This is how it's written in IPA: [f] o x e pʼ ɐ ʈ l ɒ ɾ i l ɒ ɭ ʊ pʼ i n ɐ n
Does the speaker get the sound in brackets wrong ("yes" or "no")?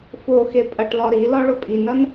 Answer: no